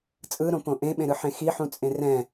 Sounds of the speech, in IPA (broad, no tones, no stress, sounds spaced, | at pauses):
t͡sʼ ɯ ɾ õ p õ ʔ ẽ ɓ ẽ ɾ ɯ ħ ẽ x i ħ ũ t͡sʼ ẽ r ɛ̃